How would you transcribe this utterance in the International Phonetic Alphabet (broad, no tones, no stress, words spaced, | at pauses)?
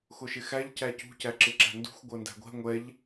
xʊʃɪxæʎ cæcṳ cæǁɪǁæ̤ndṳxʷ ɡʷɜndæ̤ɡʷɛ̤ ŋʷɛʎ